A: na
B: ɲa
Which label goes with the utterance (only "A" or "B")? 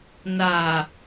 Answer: A